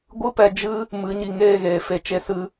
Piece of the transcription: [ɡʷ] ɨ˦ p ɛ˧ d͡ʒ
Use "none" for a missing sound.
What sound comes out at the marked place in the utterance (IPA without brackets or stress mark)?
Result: ɡʷ